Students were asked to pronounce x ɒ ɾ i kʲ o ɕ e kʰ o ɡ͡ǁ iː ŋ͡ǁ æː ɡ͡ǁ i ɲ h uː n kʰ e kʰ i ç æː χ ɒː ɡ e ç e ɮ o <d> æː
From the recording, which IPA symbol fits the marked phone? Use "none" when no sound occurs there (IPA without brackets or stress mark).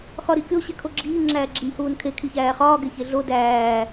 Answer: d